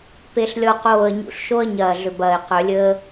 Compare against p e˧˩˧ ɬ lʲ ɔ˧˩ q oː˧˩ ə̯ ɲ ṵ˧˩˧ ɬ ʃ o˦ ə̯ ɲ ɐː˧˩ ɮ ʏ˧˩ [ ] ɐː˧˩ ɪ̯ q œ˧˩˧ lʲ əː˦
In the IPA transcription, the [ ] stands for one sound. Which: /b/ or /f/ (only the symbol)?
b